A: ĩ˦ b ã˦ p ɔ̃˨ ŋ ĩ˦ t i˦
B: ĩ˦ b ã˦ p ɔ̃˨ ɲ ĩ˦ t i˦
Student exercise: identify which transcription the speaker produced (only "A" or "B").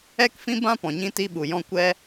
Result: B